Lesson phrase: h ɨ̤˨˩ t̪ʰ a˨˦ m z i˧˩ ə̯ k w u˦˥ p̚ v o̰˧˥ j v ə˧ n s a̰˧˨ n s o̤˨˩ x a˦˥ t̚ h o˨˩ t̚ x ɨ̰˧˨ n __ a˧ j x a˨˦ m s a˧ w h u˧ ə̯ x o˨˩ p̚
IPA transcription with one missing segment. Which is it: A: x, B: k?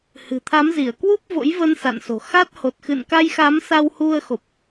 B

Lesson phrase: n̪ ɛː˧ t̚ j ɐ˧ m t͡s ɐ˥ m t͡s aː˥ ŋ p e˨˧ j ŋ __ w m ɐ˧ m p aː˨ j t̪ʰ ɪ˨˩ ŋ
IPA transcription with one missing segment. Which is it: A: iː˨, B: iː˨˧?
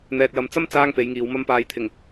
B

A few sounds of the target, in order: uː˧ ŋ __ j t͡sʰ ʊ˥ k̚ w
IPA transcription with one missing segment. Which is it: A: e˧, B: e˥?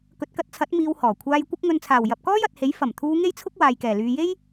B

